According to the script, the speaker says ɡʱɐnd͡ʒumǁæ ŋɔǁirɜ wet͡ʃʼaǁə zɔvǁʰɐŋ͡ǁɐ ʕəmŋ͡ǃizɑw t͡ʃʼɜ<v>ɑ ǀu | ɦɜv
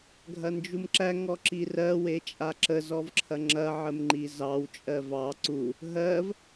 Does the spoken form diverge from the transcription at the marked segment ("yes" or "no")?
no